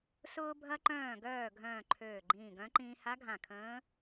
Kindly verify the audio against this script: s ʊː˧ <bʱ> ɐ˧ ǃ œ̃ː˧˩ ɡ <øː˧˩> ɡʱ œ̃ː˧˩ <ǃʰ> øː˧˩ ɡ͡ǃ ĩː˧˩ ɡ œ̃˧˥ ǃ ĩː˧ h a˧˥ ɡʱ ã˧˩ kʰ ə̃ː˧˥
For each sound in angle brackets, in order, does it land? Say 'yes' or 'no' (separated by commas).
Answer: yes, no, yes